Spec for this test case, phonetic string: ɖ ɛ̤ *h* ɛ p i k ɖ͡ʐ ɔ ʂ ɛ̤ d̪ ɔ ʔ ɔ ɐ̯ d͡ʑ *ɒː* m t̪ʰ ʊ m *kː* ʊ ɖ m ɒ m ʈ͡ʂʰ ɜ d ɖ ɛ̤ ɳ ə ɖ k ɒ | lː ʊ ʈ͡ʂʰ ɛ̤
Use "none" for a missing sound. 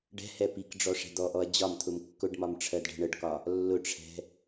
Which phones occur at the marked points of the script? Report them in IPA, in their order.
h, ɒ, kː

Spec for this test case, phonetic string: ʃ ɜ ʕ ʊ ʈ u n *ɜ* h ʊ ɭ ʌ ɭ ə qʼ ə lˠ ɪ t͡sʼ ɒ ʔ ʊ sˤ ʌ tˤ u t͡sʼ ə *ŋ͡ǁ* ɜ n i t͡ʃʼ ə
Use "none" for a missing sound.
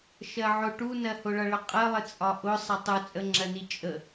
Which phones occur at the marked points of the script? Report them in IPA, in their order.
ɜ, ŋ͡ǁ

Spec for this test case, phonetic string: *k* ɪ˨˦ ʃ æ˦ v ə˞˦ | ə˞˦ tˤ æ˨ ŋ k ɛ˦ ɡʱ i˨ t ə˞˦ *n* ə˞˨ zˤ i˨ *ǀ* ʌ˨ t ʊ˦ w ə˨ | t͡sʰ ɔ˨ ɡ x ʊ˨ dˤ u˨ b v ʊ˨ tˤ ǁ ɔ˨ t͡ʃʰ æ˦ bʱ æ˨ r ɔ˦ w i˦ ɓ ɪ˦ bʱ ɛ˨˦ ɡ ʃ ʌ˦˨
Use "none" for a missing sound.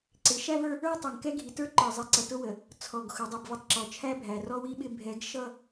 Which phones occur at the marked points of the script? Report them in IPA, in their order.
ǀ, ǃ, ǀ

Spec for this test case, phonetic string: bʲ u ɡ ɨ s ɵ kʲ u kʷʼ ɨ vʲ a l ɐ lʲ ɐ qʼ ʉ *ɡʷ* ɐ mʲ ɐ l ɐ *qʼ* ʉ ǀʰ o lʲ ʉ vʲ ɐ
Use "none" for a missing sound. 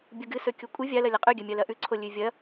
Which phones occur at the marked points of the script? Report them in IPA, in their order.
ɡʲ, ʔ

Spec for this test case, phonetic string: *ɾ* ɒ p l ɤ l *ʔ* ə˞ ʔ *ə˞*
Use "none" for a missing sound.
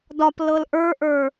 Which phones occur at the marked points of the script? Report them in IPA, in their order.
d, ʔ, ə˞

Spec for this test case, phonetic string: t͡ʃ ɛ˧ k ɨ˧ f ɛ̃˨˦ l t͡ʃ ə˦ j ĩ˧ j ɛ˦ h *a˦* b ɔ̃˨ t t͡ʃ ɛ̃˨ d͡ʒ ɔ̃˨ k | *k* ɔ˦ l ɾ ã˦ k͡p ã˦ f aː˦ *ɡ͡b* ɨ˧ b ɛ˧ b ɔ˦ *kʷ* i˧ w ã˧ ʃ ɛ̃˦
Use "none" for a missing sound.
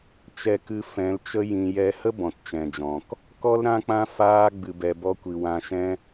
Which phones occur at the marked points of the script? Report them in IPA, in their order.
ə˦, k, ɡ͡b, kʷ

